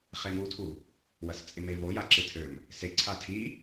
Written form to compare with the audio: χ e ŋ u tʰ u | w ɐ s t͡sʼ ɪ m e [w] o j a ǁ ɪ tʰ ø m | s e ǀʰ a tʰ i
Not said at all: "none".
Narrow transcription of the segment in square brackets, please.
v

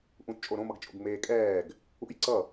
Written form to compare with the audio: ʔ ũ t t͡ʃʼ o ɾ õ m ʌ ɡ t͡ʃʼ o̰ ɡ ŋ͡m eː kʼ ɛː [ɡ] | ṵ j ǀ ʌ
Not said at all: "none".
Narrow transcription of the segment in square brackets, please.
ɡ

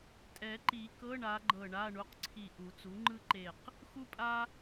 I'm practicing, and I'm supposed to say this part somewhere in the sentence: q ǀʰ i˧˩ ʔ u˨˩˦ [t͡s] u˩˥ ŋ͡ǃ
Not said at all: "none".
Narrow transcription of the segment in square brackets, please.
t͡s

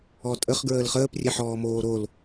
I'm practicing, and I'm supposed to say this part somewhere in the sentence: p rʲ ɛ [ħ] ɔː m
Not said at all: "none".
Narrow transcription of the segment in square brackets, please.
ħ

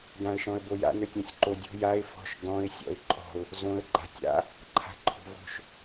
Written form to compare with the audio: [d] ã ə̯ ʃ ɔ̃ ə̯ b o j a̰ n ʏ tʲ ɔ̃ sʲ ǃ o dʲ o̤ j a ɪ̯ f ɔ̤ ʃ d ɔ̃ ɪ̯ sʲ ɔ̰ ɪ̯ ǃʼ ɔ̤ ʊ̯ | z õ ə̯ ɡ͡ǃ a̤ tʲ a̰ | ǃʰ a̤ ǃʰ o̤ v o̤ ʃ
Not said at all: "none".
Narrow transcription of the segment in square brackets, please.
d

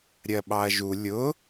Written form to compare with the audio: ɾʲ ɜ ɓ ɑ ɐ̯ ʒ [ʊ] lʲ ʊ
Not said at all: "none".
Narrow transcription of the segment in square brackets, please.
u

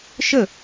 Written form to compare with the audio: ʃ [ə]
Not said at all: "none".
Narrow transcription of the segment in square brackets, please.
ə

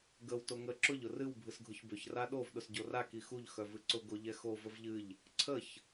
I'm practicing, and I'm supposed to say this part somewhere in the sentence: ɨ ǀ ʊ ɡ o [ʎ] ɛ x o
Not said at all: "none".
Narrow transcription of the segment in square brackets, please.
ʎ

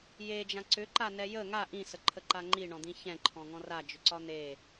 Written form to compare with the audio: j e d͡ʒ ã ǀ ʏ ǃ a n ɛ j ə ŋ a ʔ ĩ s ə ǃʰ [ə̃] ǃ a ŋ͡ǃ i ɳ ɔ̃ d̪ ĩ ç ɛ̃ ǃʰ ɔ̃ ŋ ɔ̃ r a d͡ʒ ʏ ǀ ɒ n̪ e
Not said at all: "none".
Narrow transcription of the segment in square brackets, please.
ə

